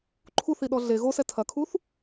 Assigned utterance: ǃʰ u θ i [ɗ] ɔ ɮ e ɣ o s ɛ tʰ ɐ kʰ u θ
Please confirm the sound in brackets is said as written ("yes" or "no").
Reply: yes